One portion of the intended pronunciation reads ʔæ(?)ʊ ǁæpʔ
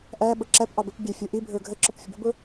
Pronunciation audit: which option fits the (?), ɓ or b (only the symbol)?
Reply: ɓ